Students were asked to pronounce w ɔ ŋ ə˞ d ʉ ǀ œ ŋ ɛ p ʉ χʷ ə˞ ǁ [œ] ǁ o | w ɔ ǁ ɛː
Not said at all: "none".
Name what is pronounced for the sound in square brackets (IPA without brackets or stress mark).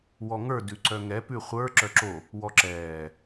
œ